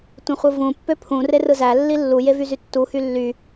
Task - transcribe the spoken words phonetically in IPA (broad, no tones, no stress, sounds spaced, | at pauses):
tʷ ẽ χʷ ɯ v ũ pː ø pʰ ũ r e r ɯ z æ lː i lː u j e v y z y tː u h y lː y